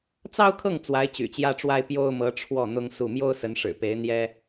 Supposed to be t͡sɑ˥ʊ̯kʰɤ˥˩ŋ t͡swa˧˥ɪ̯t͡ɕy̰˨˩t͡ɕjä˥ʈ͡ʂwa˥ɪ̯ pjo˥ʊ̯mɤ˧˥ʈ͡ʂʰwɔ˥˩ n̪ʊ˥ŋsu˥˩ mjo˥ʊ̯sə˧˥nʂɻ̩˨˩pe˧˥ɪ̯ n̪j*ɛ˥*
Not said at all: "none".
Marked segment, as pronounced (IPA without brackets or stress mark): ɛ˥